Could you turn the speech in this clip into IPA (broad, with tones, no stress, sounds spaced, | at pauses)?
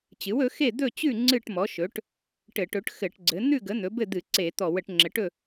t͡ɕ ɨ˩˥ w ɵ˩˥ x e˥˨ d̪ ɵ˥˨ t͡ɕ ʉ˥˨ ŋ͡ǀ ɨ˥˨ ʈ m ɔ˩˥ ʃ ɵ˩˥ ʈ | ʈ ɘ˧˩˧ ʈ ɵ˩˥ ʈ x ɘ˧˩˧ ʈ ɡ͡ǀ ɘ˩˥ n̪ ʉ˥˨ ɡ ə˩˥ n̪ ɵ˩˥ b ɘ˥˨ d̪ ɨ˧˩˧ ǀ e˧˩˧ t̪ ɔ˧˩˧ w ə˧˩˧ ʈ ŋ͡ǁ ɘ˩˥ ʈ ɵ˥˨